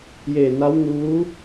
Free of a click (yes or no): yes